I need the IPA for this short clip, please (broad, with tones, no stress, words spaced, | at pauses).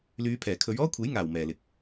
lyː˨˧pʰɛː˨˩kʰɵ˨˧ɥ ɔː˥kʷʰe˨˥jŋaː˨˩w mɛː˨˩lɪ˨k̚